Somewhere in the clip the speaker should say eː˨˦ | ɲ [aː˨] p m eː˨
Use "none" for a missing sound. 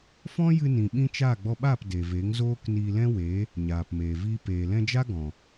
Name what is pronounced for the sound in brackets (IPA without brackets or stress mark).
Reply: aː˨